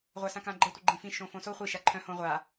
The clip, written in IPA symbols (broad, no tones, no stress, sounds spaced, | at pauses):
ʁʷ a s ã k ã ɡ͡ǃ ə tʷ ə ɡ͡ǃ ĩ f ĩ ʃ õ f õ s o χʷ i ʃ a ǃʰ œ̃ h õ ʁʷ a